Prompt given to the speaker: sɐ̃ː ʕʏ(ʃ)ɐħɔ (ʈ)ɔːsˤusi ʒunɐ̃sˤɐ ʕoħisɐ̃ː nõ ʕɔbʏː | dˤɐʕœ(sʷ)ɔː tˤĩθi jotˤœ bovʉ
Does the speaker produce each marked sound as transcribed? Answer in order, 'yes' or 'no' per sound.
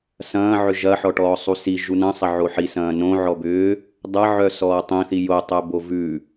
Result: no, yes, no

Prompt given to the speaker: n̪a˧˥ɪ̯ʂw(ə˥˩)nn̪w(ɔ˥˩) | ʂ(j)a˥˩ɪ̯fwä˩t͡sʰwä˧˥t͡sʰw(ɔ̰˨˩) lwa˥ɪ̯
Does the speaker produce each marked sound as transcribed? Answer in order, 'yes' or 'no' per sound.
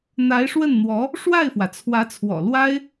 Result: yes, no, no, yes

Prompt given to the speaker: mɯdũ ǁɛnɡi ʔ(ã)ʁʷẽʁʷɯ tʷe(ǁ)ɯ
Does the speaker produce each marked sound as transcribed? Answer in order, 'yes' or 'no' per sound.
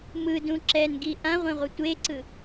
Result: yes, no

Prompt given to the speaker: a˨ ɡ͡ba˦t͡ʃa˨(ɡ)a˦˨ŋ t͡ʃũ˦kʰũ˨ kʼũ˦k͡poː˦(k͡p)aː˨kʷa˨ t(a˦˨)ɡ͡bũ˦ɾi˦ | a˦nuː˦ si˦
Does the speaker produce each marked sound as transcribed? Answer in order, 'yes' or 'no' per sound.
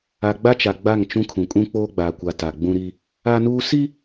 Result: no, no, no

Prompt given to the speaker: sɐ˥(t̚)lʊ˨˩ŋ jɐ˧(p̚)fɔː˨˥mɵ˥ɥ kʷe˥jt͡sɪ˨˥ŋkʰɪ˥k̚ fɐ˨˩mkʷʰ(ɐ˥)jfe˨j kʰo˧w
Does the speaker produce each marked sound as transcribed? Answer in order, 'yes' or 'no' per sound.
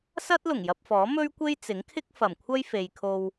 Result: yes, yes, yes

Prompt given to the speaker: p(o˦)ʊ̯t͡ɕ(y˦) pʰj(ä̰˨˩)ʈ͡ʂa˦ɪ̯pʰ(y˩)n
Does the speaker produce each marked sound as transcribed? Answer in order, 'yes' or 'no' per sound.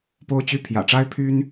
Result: yes, yes, yes, no

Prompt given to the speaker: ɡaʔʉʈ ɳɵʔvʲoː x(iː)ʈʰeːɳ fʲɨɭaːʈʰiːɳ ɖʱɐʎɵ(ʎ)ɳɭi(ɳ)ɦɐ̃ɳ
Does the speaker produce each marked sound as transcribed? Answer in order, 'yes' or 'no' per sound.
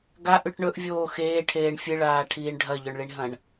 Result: no, no, yes

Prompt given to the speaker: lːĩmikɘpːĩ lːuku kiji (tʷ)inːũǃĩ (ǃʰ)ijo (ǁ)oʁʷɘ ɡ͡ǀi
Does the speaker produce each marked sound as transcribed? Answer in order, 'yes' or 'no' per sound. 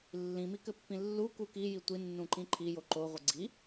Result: yes, yes, no

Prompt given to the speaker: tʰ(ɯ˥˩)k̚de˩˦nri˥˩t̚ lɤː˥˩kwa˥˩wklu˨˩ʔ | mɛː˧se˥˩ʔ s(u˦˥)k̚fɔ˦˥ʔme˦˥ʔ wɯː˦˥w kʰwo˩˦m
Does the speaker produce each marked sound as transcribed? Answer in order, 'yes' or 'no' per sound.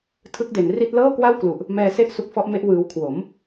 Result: no, yes

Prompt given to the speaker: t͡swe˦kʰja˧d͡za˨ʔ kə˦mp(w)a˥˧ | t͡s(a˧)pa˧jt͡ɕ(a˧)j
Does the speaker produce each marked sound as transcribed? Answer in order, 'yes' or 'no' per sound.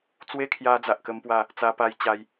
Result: yes, yes, yes

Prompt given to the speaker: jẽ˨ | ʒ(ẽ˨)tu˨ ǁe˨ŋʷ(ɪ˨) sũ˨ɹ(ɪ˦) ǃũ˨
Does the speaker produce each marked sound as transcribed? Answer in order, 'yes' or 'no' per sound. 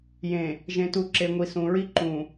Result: yes, no, no

